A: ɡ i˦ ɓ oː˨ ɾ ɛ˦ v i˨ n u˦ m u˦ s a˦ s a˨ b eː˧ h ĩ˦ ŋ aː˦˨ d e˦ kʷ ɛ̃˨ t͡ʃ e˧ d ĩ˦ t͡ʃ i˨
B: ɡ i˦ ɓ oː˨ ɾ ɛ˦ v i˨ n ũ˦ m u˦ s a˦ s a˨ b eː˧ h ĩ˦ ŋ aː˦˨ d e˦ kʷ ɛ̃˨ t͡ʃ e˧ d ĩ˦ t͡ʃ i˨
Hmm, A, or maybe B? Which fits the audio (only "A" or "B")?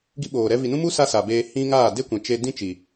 B